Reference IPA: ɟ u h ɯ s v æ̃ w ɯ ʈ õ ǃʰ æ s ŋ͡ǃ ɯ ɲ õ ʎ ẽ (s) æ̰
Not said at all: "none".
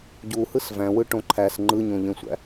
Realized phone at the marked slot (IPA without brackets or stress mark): sʷ